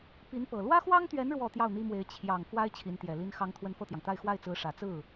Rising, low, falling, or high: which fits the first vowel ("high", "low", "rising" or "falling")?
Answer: rising